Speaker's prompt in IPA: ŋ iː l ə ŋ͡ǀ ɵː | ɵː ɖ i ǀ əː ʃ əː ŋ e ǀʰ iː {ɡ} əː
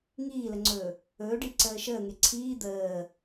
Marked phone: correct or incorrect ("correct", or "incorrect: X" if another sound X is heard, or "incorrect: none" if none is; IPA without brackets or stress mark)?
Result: incorrect: d̪